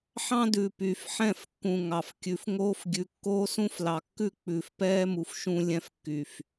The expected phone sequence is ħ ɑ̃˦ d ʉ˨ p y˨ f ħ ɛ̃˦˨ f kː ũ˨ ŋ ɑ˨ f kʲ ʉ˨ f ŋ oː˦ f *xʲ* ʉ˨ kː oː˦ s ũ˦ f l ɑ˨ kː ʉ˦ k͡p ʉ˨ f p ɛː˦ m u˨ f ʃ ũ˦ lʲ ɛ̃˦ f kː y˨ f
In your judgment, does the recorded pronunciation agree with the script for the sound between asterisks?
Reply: no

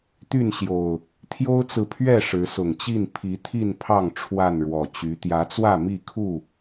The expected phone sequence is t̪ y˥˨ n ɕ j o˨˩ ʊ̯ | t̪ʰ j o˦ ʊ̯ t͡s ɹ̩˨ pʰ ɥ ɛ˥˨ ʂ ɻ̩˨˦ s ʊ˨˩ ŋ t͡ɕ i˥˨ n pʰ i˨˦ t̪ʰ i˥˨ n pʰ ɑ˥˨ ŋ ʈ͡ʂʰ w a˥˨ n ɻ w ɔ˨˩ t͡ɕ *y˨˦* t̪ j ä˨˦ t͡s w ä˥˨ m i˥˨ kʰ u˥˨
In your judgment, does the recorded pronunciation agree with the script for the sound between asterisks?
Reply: yes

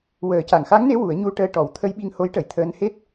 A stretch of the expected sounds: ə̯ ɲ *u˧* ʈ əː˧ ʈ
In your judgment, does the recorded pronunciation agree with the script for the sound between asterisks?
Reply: yes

